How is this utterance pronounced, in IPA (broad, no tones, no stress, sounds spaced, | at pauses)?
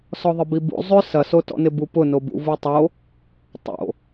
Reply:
s ɔ ðˤ ɪ b i b ṵ zˤ ʏ s ɐ s o t ɔ̰ n ɪ b u p ʊ n o b ṵ v u tˤ o | tˤ o̰